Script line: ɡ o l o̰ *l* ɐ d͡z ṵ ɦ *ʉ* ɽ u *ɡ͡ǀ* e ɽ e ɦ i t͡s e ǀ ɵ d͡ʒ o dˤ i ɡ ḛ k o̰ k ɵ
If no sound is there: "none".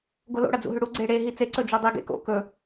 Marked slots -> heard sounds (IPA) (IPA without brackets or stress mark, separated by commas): ɽ, ʉ, ɡ͡ǀ